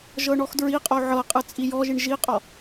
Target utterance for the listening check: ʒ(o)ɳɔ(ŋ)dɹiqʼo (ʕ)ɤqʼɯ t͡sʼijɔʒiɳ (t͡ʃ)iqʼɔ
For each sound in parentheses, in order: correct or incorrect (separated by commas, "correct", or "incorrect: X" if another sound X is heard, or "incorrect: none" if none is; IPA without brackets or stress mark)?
incorrect: ɤ, incorrect: x, correct, incorrect: ʒ